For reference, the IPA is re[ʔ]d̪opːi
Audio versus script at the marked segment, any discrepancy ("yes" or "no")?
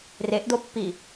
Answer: no